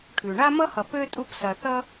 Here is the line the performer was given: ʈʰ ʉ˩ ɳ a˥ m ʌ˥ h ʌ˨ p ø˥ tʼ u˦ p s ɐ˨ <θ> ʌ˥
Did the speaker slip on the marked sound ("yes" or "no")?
no